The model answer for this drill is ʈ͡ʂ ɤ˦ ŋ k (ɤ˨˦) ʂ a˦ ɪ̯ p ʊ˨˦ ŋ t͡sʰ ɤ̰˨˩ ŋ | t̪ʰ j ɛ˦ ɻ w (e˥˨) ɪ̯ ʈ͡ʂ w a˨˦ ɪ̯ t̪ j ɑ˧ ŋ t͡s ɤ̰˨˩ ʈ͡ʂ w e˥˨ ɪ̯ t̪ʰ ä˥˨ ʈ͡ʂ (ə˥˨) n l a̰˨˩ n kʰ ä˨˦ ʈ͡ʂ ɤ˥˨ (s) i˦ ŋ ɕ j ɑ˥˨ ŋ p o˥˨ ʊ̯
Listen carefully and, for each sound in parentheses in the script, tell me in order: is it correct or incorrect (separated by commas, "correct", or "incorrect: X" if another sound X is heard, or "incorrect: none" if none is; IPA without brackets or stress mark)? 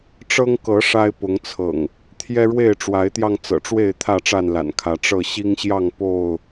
correct, correct, incorrect: a˥˨, incorrect: ɕ